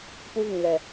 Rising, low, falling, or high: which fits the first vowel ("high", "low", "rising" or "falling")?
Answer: high